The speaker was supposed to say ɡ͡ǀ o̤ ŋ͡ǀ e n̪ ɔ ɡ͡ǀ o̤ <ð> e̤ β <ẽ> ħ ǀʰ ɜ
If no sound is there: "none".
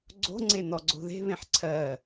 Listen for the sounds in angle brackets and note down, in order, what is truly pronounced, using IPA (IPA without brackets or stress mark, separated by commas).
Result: ð, ẽ